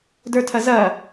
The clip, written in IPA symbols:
də˞tʰɐzɐ

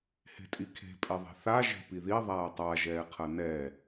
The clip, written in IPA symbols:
he̤tʼikʰe̤ pʼeðˤe̤θa ʒe̤piði ðˤaːtˤa ʒɛːqʰɐnɛ

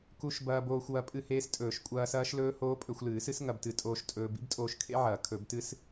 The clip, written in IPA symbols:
ku˦˥ʃ bɐː˧boː˧xʷwɐ˧ pʼɨ˧heː˧stʼɵː˨˩˦ʃ kʷʼɐː˧sɐː˦˥ʃlɵː˦˥ hoː˦˥pʼɵ˧xʷlɨː˨˩˦sɨ˦˥s ŋɐ˧btɨ˨˩˦tʼoː˧ʃ tʼɵː˧ bḭ˦˥btʼoː˧ʃkʰḛ˦˥ʕɐː˨˩˦ kʰɵ˨˩˦btɨ˦˥s

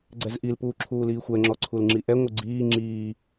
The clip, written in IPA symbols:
ɡ͡ǀɛzʔilpuː ǁʰuːliːxʷɛŋ͡ǁɔ ǀʰulŋ͡ǁiʔɛŋʷɨ ɡ͡ǀiː ŋ͡ǁiː

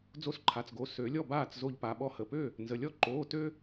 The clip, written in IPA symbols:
d͡zo˧sǃʰa˩˧˩t͡sɡo˩˧˩ sø˨˩˦lʲɔ˥˩baː˥˩t͡s zo˧ʎpa˩˧˩ɓɔ˥˩ hə˩˧˩pø˥˩ | nzə˩˧˩lʲɔ˥ ǃoː˩˧˩tø˧

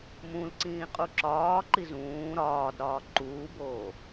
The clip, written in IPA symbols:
mũlǀĩː qʼuǁɒːǃi zũː ɾɒːdɾɒː ǃuːboː

